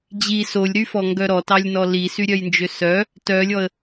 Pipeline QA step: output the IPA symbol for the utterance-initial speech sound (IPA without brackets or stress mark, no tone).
d͡ʑ